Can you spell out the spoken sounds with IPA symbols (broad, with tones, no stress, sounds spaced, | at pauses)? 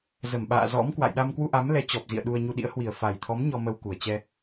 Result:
z ə˧˩ m ɓ a̰ː˧˨ z ɔ̰˧˥ m k w a̰˧˨ j ɗ a˧ m k w u˧ ʔ a˨˦ m l ɛ˨˦ t͡ɕ ɔ˨˩ p̚ z ḭ˧˨ ə̯ ɗ u˧ ə̯ ɲ u˧ ɗ ḭ˧˥ ə̯ h w i˨˩ ə̯ f a˨˩ j t̪ʰ ɔ˨˦ m ɲ ɔ˧ m ə˧ w k u˨˩ ə̯ t͡ɕ ɛ˧